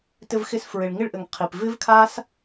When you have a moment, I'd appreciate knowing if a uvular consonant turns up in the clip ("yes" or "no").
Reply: yes